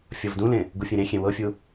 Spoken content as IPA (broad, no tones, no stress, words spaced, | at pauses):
fʲɤvdũlẽ | ɡufʲẽɾẽxʲẽ wɤfʲu